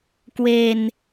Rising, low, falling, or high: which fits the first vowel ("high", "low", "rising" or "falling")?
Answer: low